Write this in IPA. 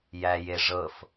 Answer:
j æ j e ʐ ɤ f

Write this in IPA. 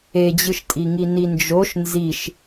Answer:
e d͡ʑ ɯ ʃ tʼ i ŋ i n i n d͡ʒ o ʃ n z i ʃ

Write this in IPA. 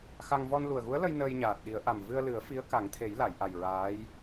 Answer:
x a˧ ŋ v ɔ˧ n l u˨˩ ə̯ ɣ u˧˥ ə̯ l ə˧ j n əː˧ j ɲ aː˨˩ t̚ ɗ i˨˩˦ ə̯ ʔ a˨˩ m v ɨ˧ ə̯ l ɨ˨˩˦ ə̯ f i˧˥ ə̯ k a˨˩˦ ŋ t̪ʰ e˨˩˦ j l a˨˩˨ j ʔ a˨˩ j ɹ aː˧˥ j

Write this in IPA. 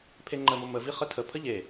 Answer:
pʰ e ŋ͡ǃ ə m o m ə v i χ ə tʰ ə pʰ ə ʎ e

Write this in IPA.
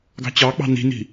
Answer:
ɡ ɑ̤ t͡ɕ ɑ k͡p ɑ̤ n i̤ n i̤

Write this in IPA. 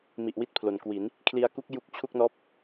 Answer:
m i˨˩ ʔ w i˦˥ t̚ pʰ l o˨˩ n k w i˩˦ n | kʰ l i˧ a̯ k u˥˩ k̚ j u˦˥ k̚ t͡ɕʰ u˥˩ k̚ n ɔː˥˩ p̚

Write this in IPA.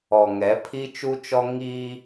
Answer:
ɔ˨ ŋ ɛ˨˦ pʰ i˦ t͡ʃ u˦ t͡ʃ ɔ˦ ŋ i˦

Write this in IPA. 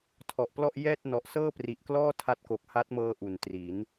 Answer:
tʰ ɔ˨˩ ʔ p l ɔ˥˩ ʔ j ɛː˥˩ t̚ n ɔ˨˩ ʔ s ɤː˥˩ p r i˨˩ ʔ k l ɔː˥˩ tʰ a˦˥ t̚ k o˨˩ k̚ h a˦˥ t̚ m ɤː˧ ʔ u˩˦ n t r i˩˦ n

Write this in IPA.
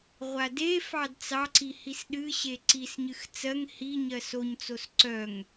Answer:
ʁʷ a d e f ɑ d t͡s ɑ ǀ i h i s ɗ ɨ ɕ e ǀ i s ɲ ɨ x t͡s ɜ ŋ h i ɲ ɜ s o ɲ t͡s o s ǀ œ ŋ

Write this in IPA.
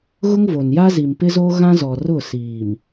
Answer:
ɣ ʊ˦ ŋ v o˨ n j a˦ z i˨ m p ɪ˦ z o˦ ɣ ã˦ z ɔ˨ r ʊ˦˨ s iː˨ m

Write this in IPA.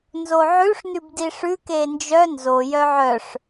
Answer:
n z o ʕ ʉ ʂ n ʉ b d i ʂ ʉ k e n d͡ʒ œ n z o j œ ʕ œ ʂ

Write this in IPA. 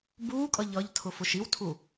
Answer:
b uː kʼ ʌ ʎ ʌ ʎ tʰ ʊ f ʊ ʃ i w tʰ u

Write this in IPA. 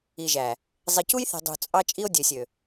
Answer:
i˨ ʒ æ˨ | zˤ i˨ c u˦ j θ e̤˨ dˤ ṳ˨ t͡sʼ ɑ˦ t͡ʃʼ i˦ o̯ dʲ ø˨ sʲ ø˨

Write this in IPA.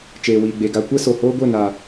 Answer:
t͡ʃ eː˨ w iː˨ ɡ͡b e˨ ɡ a˧ kʷ ɛ˦ s o˨ h oː˦ ɡʷ e˦˨ n aː˨

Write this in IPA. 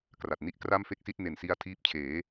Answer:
k r a˨˩ t̚ n i˥˩ ʔ k r a˥˩ m f e˥˩ k̚ s i˥˩ t̚ n e˨˩ n s i˧ a̯ tʰ iː˦˥ p̚ t͡ɕʰ eː˩˦

